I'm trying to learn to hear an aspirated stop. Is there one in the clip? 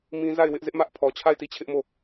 yes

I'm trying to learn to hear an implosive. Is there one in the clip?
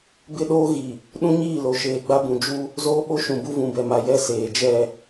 yes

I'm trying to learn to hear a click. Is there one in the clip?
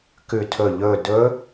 no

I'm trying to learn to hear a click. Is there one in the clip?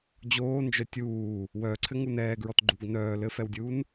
yes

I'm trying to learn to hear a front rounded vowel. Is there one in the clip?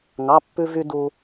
yes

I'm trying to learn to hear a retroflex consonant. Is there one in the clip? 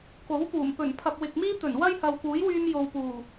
no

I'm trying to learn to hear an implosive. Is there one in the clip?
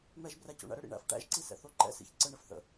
no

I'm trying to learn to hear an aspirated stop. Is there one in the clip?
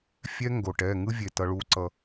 no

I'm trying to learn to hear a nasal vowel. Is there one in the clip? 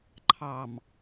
no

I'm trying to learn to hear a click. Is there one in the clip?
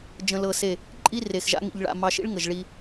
yes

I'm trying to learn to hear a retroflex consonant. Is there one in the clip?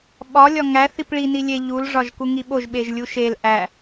yes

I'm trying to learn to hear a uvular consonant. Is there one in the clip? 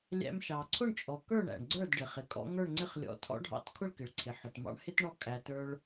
yes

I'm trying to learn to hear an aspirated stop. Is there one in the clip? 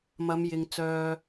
no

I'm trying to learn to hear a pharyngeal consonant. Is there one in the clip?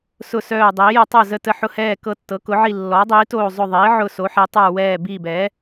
yes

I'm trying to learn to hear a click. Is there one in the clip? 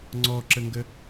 yes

